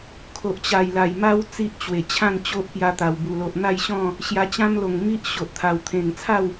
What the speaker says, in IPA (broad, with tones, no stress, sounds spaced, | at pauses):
kʰ o˨ ʔ t͡ɕ a˨˩ j l a˨˩ j m a˦ w t͡s i˦ ʔ t͡ɕ w e˨˩ t͡ɕʰ ã˥˧ n t͡ɕ o˦ ʔ p j a˧ t̪ a˨˩ w b u˨˩ l o˨ ʔ n̪ a˥˧ j ɕ ɔ̃˥˧ | ɕ j a˧ t͡ɕ ã˦ m l o˨˩ ŋ m i˦ ʔ ɕ o˨ ʔ t̪ʰ a˨˩ w t̪ʰ ẽ˨˩ ŋ t͡sʰ a˥˧ w